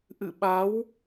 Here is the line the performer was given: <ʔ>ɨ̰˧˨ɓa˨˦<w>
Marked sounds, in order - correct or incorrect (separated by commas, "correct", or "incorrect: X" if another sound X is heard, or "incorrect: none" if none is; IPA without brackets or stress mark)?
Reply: correct, correct